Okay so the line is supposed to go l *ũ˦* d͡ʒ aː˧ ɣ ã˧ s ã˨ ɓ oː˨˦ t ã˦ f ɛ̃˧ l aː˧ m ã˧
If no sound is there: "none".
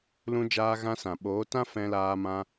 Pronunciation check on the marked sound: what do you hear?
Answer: ũ˧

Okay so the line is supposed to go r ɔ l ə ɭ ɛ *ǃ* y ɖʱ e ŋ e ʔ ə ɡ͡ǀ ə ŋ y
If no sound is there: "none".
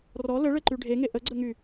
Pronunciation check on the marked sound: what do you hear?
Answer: ǃ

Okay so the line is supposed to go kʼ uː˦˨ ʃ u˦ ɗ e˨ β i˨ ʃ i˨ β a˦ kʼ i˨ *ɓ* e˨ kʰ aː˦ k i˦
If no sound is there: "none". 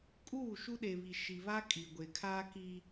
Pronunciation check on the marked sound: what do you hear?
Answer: ɡʷ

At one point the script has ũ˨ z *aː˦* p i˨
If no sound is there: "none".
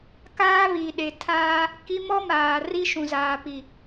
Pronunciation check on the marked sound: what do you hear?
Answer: aː˨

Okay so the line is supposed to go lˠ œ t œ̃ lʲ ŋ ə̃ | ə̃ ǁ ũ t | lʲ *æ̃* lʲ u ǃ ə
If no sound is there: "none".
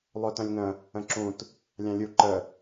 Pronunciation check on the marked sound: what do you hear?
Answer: ã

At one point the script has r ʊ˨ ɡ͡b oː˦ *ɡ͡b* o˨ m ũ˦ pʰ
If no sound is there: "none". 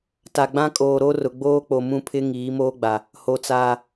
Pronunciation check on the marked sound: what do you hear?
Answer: k͡p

